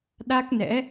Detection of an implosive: present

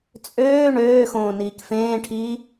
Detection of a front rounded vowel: present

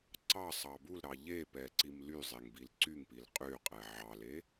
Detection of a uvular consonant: present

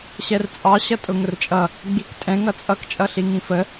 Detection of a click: absent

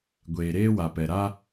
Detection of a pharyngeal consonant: absent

